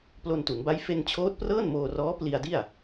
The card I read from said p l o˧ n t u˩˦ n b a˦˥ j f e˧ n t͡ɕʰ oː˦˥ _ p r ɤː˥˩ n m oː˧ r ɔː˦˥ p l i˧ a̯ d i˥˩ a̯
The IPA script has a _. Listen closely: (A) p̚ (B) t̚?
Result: B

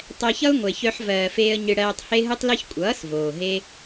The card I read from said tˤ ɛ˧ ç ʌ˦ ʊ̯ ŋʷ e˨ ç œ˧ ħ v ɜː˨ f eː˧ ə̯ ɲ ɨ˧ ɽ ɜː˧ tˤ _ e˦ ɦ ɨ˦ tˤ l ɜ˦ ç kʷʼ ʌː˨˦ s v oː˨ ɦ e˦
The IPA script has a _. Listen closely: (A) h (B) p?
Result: A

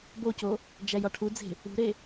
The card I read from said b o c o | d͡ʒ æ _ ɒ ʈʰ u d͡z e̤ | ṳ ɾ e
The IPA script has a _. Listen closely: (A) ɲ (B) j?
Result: B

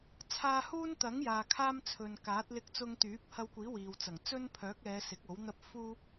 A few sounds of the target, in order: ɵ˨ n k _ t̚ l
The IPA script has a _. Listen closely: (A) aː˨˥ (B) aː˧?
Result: A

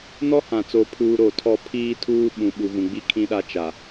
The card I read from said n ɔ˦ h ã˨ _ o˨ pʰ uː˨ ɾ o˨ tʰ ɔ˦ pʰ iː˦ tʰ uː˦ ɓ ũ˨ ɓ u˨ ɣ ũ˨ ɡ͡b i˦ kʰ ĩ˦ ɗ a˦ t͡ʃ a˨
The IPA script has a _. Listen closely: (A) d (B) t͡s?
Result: B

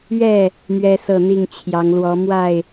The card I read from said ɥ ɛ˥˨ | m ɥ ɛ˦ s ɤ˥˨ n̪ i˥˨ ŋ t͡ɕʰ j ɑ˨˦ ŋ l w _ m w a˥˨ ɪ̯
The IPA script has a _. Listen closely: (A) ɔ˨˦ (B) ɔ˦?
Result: A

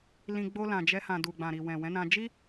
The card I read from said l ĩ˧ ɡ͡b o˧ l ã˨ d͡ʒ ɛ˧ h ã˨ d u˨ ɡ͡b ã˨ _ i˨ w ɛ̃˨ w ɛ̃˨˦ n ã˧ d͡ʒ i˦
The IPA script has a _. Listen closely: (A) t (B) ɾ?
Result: B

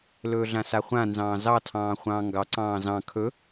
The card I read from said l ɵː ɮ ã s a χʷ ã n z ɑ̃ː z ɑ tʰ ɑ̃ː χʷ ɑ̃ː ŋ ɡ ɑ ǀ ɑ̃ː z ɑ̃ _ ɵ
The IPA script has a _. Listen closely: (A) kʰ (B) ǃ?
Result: A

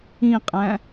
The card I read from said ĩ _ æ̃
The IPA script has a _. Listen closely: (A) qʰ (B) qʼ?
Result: B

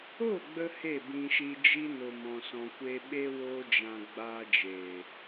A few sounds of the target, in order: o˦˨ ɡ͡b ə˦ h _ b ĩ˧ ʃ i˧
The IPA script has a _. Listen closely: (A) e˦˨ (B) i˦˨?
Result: A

